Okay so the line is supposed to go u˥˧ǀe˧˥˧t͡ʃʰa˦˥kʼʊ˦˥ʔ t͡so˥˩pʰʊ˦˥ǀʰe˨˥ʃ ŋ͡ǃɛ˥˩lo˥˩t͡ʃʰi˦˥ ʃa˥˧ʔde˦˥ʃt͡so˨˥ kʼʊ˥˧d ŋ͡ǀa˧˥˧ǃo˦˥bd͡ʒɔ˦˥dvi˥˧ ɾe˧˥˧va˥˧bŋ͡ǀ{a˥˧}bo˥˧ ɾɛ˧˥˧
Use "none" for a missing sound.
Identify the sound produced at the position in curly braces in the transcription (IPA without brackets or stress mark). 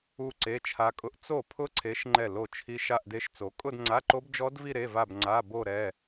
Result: a˧˥˧